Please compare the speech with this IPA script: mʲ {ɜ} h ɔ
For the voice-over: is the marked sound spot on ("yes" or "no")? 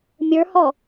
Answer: no